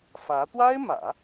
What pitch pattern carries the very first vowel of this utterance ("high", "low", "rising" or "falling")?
rising